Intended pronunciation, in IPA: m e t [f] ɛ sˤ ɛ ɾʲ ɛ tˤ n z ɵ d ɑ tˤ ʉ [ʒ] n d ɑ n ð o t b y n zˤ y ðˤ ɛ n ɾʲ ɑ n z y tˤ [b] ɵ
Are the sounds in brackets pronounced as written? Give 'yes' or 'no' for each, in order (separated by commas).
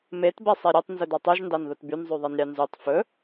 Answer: no, yes, no